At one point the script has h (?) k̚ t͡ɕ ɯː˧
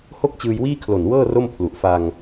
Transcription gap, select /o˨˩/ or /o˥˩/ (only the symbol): o˥˩